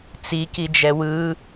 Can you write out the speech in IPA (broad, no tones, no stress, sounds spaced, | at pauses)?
t͡s i k i d͡ʒ ɛ w ɯ